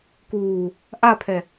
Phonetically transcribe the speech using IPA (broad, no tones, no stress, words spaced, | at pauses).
kuː | ʔapʰɛ